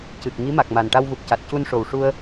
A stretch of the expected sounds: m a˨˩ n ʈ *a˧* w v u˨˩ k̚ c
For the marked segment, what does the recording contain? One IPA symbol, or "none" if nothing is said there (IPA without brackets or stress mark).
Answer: a˧